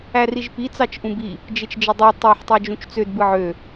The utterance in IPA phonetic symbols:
æ r i ʒ p i t͡s ɑ t͡ʃ ʔ ũ b i | d͡ʒ e t͡ʃ d͡ʒ e dˤ e tˤ e ħ tˤ i d͡ʒ ũ t͡ʃ t͡s ø d b ɯ ʕ ø

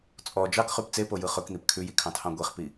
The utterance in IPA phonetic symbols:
t͡sʼ ɔ d͡ʒ ɑ k χ ʉ p t͡s e p o j ɯ χ ɵ k n̪ i p kʰ ʉ j i kʰ ɑ̃ tʰ ɑ̃ ɡʷ e χ p i

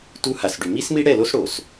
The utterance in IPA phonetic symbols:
t u˦ h a˨ s ɖ y˨ m i˦ s m i˦ ɽ ɛ˦˨ l o˦ s ɽ o˨ s

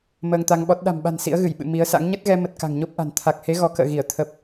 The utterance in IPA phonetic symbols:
m əː˧ ŋ t̪ a˧ ŋ ɓ ɔ˦˥ t̚ ɗ a̤˨˩ m ɓ a̤˨˩ n s ḭ˧˥ ə̯ ɣ ɨ˧˩ j ɓ ɨ̰˧˨ m i˨˦ ə̯ s a̰˧˥ ŋ ɲ ə˦˥ t̚ ɣ ɛ˧ m ə˨˩ t̚ k a̤˨˩ ŋ ɲ o˦˥ p̚ ʔ a̤˨˩ n t̪ʰ a˨˩ k̚ h e˨˦ ɣ ɔ˨˦ k ə̰ː˧˨ ɣ i˧˩ ə̯ t̪ʰ ə˨˩ p̚

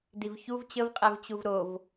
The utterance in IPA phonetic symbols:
d i v ç u v t͡ɕ ə v qʼ ɛ v t͡ɕ u v ɾ o v

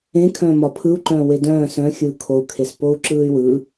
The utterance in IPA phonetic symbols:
ẽ kʰ œ̃ː m ɒ pʰ ɯ u̯ ǃ œ̃ː w e d œ̃ː s œ̃ xʲ ɯː kʰ o u̯ kʰ e s p o u̯ ǁ ɯː y̯ w ɯ

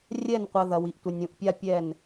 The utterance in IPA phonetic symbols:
rʲ ɛ˦˨ n qʷ ɐ˨ ð ɐ˨ w i˨ ʔ tʷ ɘ˨ nʲ ũ˨ ʔ pʲ a˦ pʲ ɛ˦˨ n

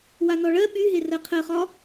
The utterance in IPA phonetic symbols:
w a n ɔ ɭ ɜ ɓ y ɦ e r ɜ qʰ ɜ χ ɒ

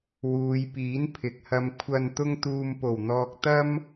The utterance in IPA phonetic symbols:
w uː˨˧ j p iː˨˥ n pʰ ɪ˨ k̚ h ɐ˧ m kʷʰ ɐ˧ n t̪ ʊ˥ ŋ t̪ uː˧ m p o˨˩ w n̪ ɔː˨ k̚ t̪ ɐ˥ m

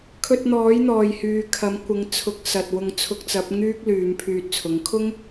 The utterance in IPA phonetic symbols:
kʰ ɵ˧ t̚ n̪ ɔː˨˥ j n̪ ɔː˨ j h yː˨ kʰ ɐ˨˥ m kʷ ɪ˨˧ ŋ t͡sʰ ʊ˨˥ k̚ s ɐ˨ t̚ w ʊ˧ ŋ t͡sʰ ʊ˧ k̚ t͡s ɐ˨˥ p̚ ŋ yː˥ k̚ l yː˨˧ m pʰ yː˧ t̚ t͡sʰ ʊ˨˥ ŋ kʰ ʊ˥ ŋ

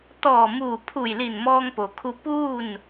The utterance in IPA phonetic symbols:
t̪ ɔː˧˩ m uː˧˩ pʰ u˧˩ j l i˧˩ n m ɔː˧ ŋ p o˩ kʰ u˧ p uː˥˨ n

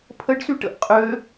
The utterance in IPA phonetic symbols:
pʰ ə ɖ s y ʈ ə̰ ʔ qʼ ø

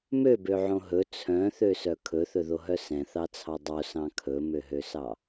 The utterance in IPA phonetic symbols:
m ø b ø ʕ õ ɦ ɵ t͡sʰ œ̃ θ ø s œ kʰ ɵ θ ɵ ð o ɦ œ s ɛ̃ θ ɑ t͡sʰ ɑ dˤ o s ɑ̃ kʰ ɵ m ø ɦ ø s ɑ

